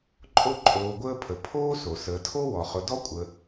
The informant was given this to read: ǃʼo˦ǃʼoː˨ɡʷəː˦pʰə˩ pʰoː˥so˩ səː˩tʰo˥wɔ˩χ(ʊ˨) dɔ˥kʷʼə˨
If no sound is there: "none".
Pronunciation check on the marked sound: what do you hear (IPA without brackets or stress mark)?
ʊ˨